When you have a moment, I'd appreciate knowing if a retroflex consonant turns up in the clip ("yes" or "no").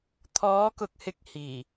no